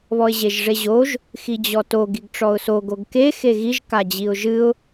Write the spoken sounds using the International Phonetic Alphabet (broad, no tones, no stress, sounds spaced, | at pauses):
β ɔ ɪ̯ ʑ e ʒ ʐ e ʑ o ʒ | x i d͡ʑ ɔ t o ɡ i ɡ ʈ͡ʂ ɔ ʊ̯ s o ɡ o ɡ k e x e ɣ i ʒ k a d͡ʑ i ʊ̯ ʒ ɨ ʊ̯